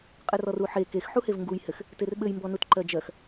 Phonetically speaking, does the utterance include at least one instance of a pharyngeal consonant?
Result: yes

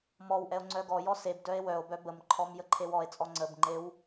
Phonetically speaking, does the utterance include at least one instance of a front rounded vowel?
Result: yes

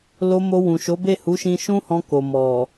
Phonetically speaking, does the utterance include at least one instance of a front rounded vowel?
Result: no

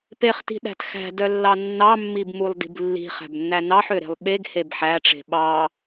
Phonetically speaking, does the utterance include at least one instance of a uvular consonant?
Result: yes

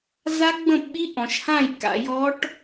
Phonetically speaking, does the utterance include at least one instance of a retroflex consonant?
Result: yes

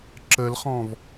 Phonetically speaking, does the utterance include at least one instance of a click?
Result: yes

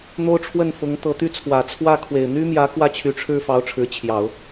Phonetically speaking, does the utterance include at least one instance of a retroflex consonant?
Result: yes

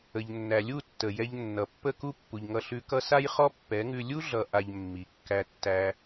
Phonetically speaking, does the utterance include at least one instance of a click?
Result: no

